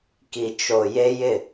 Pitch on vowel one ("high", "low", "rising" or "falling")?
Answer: low